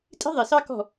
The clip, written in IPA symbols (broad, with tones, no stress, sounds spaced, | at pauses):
tʼ i̤˦ ðˤ i˨ s ɑ˦ k ɔ̤˦˨